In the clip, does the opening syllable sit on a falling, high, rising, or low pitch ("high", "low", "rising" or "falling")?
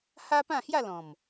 high